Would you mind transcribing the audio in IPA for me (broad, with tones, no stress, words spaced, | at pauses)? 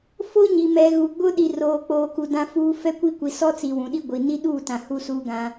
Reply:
fo˦ɲi˨ mɛ˨ ɣu˨ɡ͡bʊ˦ ɗi˨roː˨k͡poː˨ku˨ dã˦fuː˦ fɛ˦kʷi˦ kʷi˨sɔ˦t͡si˨ wũ˨ɗi˦ ɡʷi˨ ni˦ɗuː˦˨tã˨ hu˦suː˦ɡã˦